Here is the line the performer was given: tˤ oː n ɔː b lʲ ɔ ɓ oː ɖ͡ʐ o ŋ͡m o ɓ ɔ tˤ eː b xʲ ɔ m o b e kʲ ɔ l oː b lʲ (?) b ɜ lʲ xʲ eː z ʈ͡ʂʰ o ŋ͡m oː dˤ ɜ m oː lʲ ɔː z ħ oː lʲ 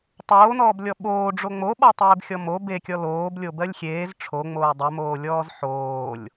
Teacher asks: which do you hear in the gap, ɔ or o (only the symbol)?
o